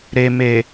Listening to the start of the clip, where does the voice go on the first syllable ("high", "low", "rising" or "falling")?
low